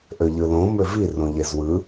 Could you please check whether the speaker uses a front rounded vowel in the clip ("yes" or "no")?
yes